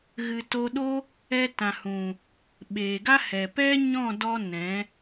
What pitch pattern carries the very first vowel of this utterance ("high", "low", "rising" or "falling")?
low